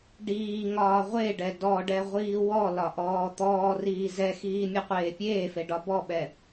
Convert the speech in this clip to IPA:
ɖ iː ŋ ɒː ʁʷ e ɖ ɛ d ɔ ɖ ɛ ʁʷ iː w ɔ l ɒ ʔ ɔː t̪ ɔː r iː z ɛ x iː mʲ ɛ qʷ eː pʲ eː f e ɖ ɒ b ɔ ɓ ɛ

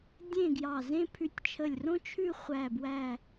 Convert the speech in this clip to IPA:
dʲ ẽ˥˧ ɡ j ɑ˧˩ z ẽ˥ pʰ ʉ˧ tʲ t͡ʃʰ ə˧˩ lʲ r õ˥ t͡ʃʰ ʉ˥˧ χʷ æ˥˧ b w æ˥˧

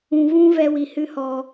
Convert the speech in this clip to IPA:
ũ˧ v ũ˦ v ɛ˦ w i˧ h ɨ˦ h ɔ˧

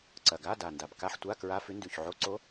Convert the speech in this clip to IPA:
ǀ ɐ˨˩ ɡ a˧˥˧ d a˨˩ n d a˨˩ b k a˧˥˧ ħ tʷ a˧˥˧ k ɹ a˧˥˧ f ʉ˧˥ n d ʉ˨˩ ç ʕ o˧˥˧ ǀ o˧˥

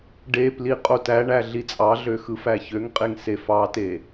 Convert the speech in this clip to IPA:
ɖ e p l i qʼ o t æ ɳ æ ɮ i t͡sʼ ɑ ɮ ø x ɯ f æ ç ø ŋ qʼ e ŋ s e f ɑ t e

